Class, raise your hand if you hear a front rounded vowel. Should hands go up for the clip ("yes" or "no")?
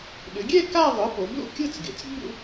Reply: yes